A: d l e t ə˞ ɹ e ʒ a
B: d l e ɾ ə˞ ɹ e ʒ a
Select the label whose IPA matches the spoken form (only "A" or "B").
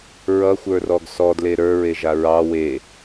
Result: B